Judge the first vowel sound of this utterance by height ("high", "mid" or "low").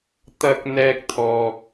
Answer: low